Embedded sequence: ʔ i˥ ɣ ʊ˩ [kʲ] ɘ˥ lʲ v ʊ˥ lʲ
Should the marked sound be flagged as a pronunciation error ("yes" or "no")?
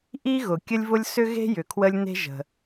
no